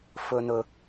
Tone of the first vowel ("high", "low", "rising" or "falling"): low